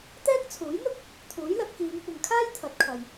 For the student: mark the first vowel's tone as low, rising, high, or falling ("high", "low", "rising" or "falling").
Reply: high